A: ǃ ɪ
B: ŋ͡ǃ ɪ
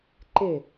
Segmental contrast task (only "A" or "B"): A